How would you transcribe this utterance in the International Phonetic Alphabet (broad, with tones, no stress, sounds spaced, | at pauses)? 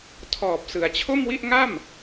tʰ ɔː˨˩ p̚ s ɯ˩˦ a̯ t͡ɕʰ o˥˩ m w i˥˩ ʔ ŋ a˥˩ m